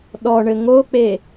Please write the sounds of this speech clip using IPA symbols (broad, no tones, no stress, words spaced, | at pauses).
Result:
ɗɔɳɘ ŋok͡pe